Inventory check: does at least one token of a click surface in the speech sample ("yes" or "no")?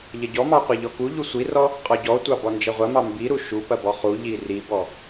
no